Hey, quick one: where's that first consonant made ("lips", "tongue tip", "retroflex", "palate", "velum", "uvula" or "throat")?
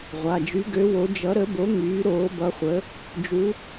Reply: uvula